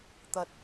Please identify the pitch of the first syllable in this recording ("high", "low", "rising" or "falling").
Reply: rising